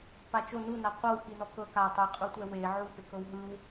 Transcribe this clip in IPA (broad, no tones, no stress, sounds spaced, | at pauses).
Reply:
p a t͡ʃ o n u n a qʷ ɤ w k i n ɔ k ɤ k a tˤ e qʼ u tʷ ɛ w e ʕ u p e k ɤ w ɦ ɯ w